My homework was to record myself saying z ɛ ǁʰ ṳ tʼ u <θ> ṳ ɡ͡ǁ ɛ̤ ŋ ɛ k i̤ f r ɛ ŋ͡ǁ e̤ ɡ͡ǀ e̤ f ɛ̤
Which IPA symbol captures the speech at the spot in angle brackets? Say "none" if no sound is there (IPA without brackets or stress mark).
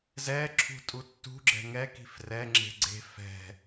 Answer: tː